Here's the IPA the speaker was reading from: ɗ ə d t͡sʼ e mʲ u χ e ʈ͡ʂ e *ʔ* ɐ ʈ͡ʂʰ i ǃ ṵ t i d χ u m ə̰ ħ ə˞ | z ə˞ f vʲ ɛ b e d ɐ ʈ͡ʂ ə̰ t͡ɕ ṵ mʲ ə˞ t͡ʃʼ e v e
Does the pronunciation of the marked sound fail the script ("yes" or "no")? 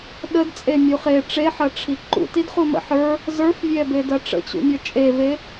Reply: yes